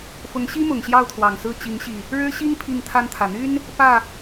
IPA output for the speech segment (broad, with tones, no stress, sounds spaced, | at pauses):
f ʊ˨˦ ŋ ɕ i˦ m ʊ˨˩ ŋ ɕ j ɑ˥˨ ʊ̯ t̪ʰ w ɑ˨˩ ŋ s ɹ̩˥˨ t͡ɕ i˨˦ ŋ ɕ i˨˩ | ɻ ɻ̩˦ ɕ i˦ ŋ pʰ i˥˨ ŋ t̪ʰ a˦ n t̪ʰ ä˨˩ n̪ y˦ n | p ä˥˨